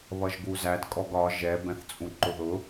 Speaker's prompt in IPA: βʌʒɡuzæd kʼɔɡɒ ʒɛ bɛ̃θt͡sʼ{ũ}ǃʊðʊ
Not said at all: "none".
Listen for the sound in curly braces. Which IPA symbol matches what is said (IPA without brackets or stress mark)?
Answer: ũ